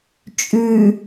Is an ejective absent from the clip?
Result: no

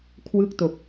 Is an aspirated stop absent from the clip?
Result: no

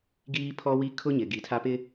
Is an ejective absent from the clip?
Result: yes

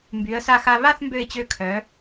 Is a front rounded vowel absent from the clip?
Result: no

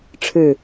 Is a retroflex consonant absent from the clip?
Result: no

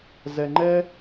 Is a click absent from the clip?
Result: no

